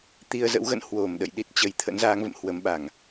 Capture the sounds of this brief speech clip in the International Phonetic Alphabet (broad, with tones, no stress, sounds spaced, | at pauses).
t̪ i˧ ə̯ z ə̰˧˥ w ɣ ə̰˧˨ n h w o˧˩ m ɗ ə̰˧˨ j ɗ i˦˥ t̚ t͡ɕ ə˨˦ j t̪ʰ ə̰˧˥ n z aː˨˦ ŋ v ə̰˧˨ m h w ə˨˦ m ɓ a˧˩˨ ŋ